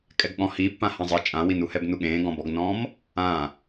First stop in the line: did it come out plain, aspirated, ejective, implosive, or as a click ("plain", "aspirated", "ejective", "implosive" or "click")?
ejective